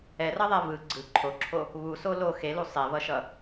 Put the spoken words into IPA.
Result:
ɛ r ʌ ðˤ ɛ v ɯ ɡ͡ǀ ɯ ǃʰ o ǁʰ o | β u s o l o x e l u sˤ e v ʌ ʃ ʌ

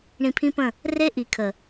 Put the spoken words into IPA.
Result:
ɳ ĩ˧ pʰ ĩ˦ p ə̃˦˨ | r e˦ ʔ i˨ kʰ ə˨

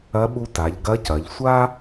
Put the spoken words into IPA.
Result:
ɐ˧˥ ɓ u˧ t a˩˧ ʎ ɡ ɐ˧˥ c ɐ˩˧ ʎ sʷ a˥

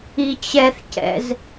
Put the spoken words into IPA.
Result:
i t͡ɕ ɛ θ c ɛ̰ z

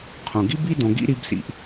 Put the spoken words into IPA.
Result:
qʰ õ˩ ɡ i˥ b i˥ d õ˨ ɡ ḭ˥ ɾ i˦ b s ḭ˨ ʔ

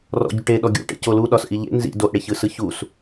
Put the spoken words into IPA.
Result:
r ɔ̰ ɟ u ʈ e ɗ ɔ ɡʲ ṵ ʈ ḛ c o l u ɗ ɒ s ʔ i ʎ ḛ n z ḭ d o ʔ ɽ e ç ɯ s ɯ ç u s

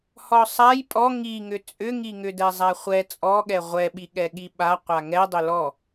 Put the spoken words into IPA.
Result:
h ɔ sˤ a j pʼ ɔ ŋ i ŋ ʏ t͡sʼ ʏ ŋ i ŋ ʏ d ɛ zˤ a χʷ ɛ t͡sʼ ɔ ɠ ɛ ʁʷ ɛ ɓ i ɠ ɛ ɠ i ɓ a qʷ a ŋ ɛ dˤ ʏ l ɔ

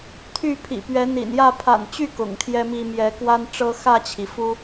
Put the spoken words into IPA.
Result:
t̪ʰ y˥˨ pʰ ḭ˨˩ p ɥ ɛ˨˦ n̪ ḭ˨˩ n j ä˥˨ pʰ a̰˨˩ n t͡ɕ y˥˨ k ʊ̰˨˩ ŋ t̪ʰ j ɛ˦ m i˦ m j ɛ˨˦ k w a˦ n ʈ͡ʂ ɤ˦ x ä˥˨ t͡ɕʰ i˩ f u˦

